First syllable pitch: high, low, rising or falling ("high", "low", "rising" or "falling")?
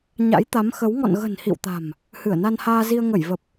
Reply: rising